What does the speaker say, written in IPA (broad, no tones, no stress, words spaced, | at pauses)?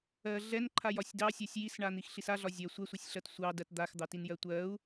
ɜ ɮɛnǃʰajɒsʲ dɑsʲɜsʲ jisɳan̪ixɬis aɮɒ zʲɜ sʷɛsʷɛsʲɬɜt sʷɑdɜt d̪axd̪ɑtinjɜ tʷɜu̯